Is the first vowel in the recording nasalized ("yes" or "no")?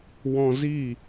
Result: yes